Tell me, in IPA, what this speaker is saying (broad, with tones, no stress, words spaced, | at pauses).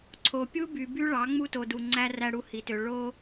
ǀʰo˨ pʲu˦by˨by˦ ɭɑ˨˦ ŋ͡mu˦to˨du˨ ŋ͡ǀæ˦ræ˦ ɽu˦hi˨tø˨ ɭo˦